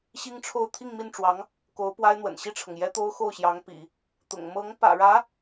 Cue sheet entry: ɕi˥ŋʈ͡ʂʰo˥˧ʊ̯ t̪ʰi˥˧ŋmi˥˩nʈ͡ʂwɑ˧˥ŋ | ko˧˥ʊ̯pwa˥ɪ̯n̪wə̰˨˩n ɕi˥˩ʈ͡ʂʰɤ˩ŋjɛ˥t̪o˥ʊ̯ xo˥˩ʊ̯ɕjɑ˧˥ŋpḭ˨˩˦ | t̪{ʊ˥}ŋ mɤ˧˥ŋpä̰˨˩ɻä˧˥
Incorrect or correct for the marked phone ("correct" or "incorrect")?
incorrect